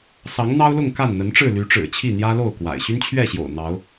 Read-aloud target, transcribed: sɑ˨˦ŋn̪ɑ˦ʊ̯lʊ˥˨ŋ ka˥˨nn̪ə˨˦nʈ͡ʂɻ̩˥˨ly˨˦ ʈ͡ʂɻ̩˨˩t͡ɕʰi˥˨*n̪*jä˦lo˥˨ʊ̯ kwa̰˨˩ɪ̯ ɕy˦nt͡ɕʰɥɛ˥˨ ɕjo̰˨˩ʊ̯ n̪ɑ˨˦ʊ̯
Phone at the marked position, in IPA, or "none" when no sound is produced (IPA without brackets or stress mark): n̪